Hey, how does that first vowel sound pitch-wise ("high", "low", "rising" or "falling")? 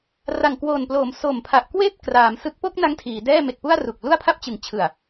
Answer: low